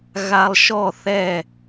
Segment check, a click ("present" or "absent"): absent